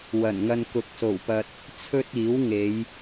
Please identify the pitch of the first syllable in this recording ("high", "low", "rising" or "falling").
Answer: low